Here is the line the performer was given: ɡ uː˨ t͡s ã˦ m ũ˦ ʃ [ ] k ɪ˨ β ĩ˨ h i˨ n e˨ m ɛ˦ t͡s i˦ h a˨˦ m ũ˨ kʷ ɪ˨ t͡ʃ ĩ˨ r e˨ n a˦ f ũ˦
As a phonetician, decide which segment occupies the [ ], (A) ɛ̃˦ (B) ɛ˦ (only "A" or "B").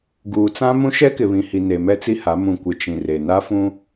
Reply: B